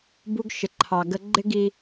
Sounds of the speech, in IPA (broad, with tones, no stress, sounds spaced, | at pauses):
b u˧ ɡ ʃ ɪ˩ ǃʰ ɑ˩ ɡ ə˧ ɡ͡ǃ ɪ˥ ɡ i˧